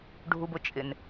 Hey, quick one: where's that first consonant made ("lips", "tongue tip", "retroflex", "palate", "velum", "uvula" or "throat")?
retroflex